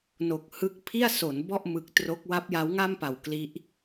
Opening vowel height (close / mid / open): mid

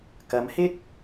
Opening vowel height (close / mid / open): open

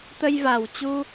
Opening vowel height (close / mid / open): mid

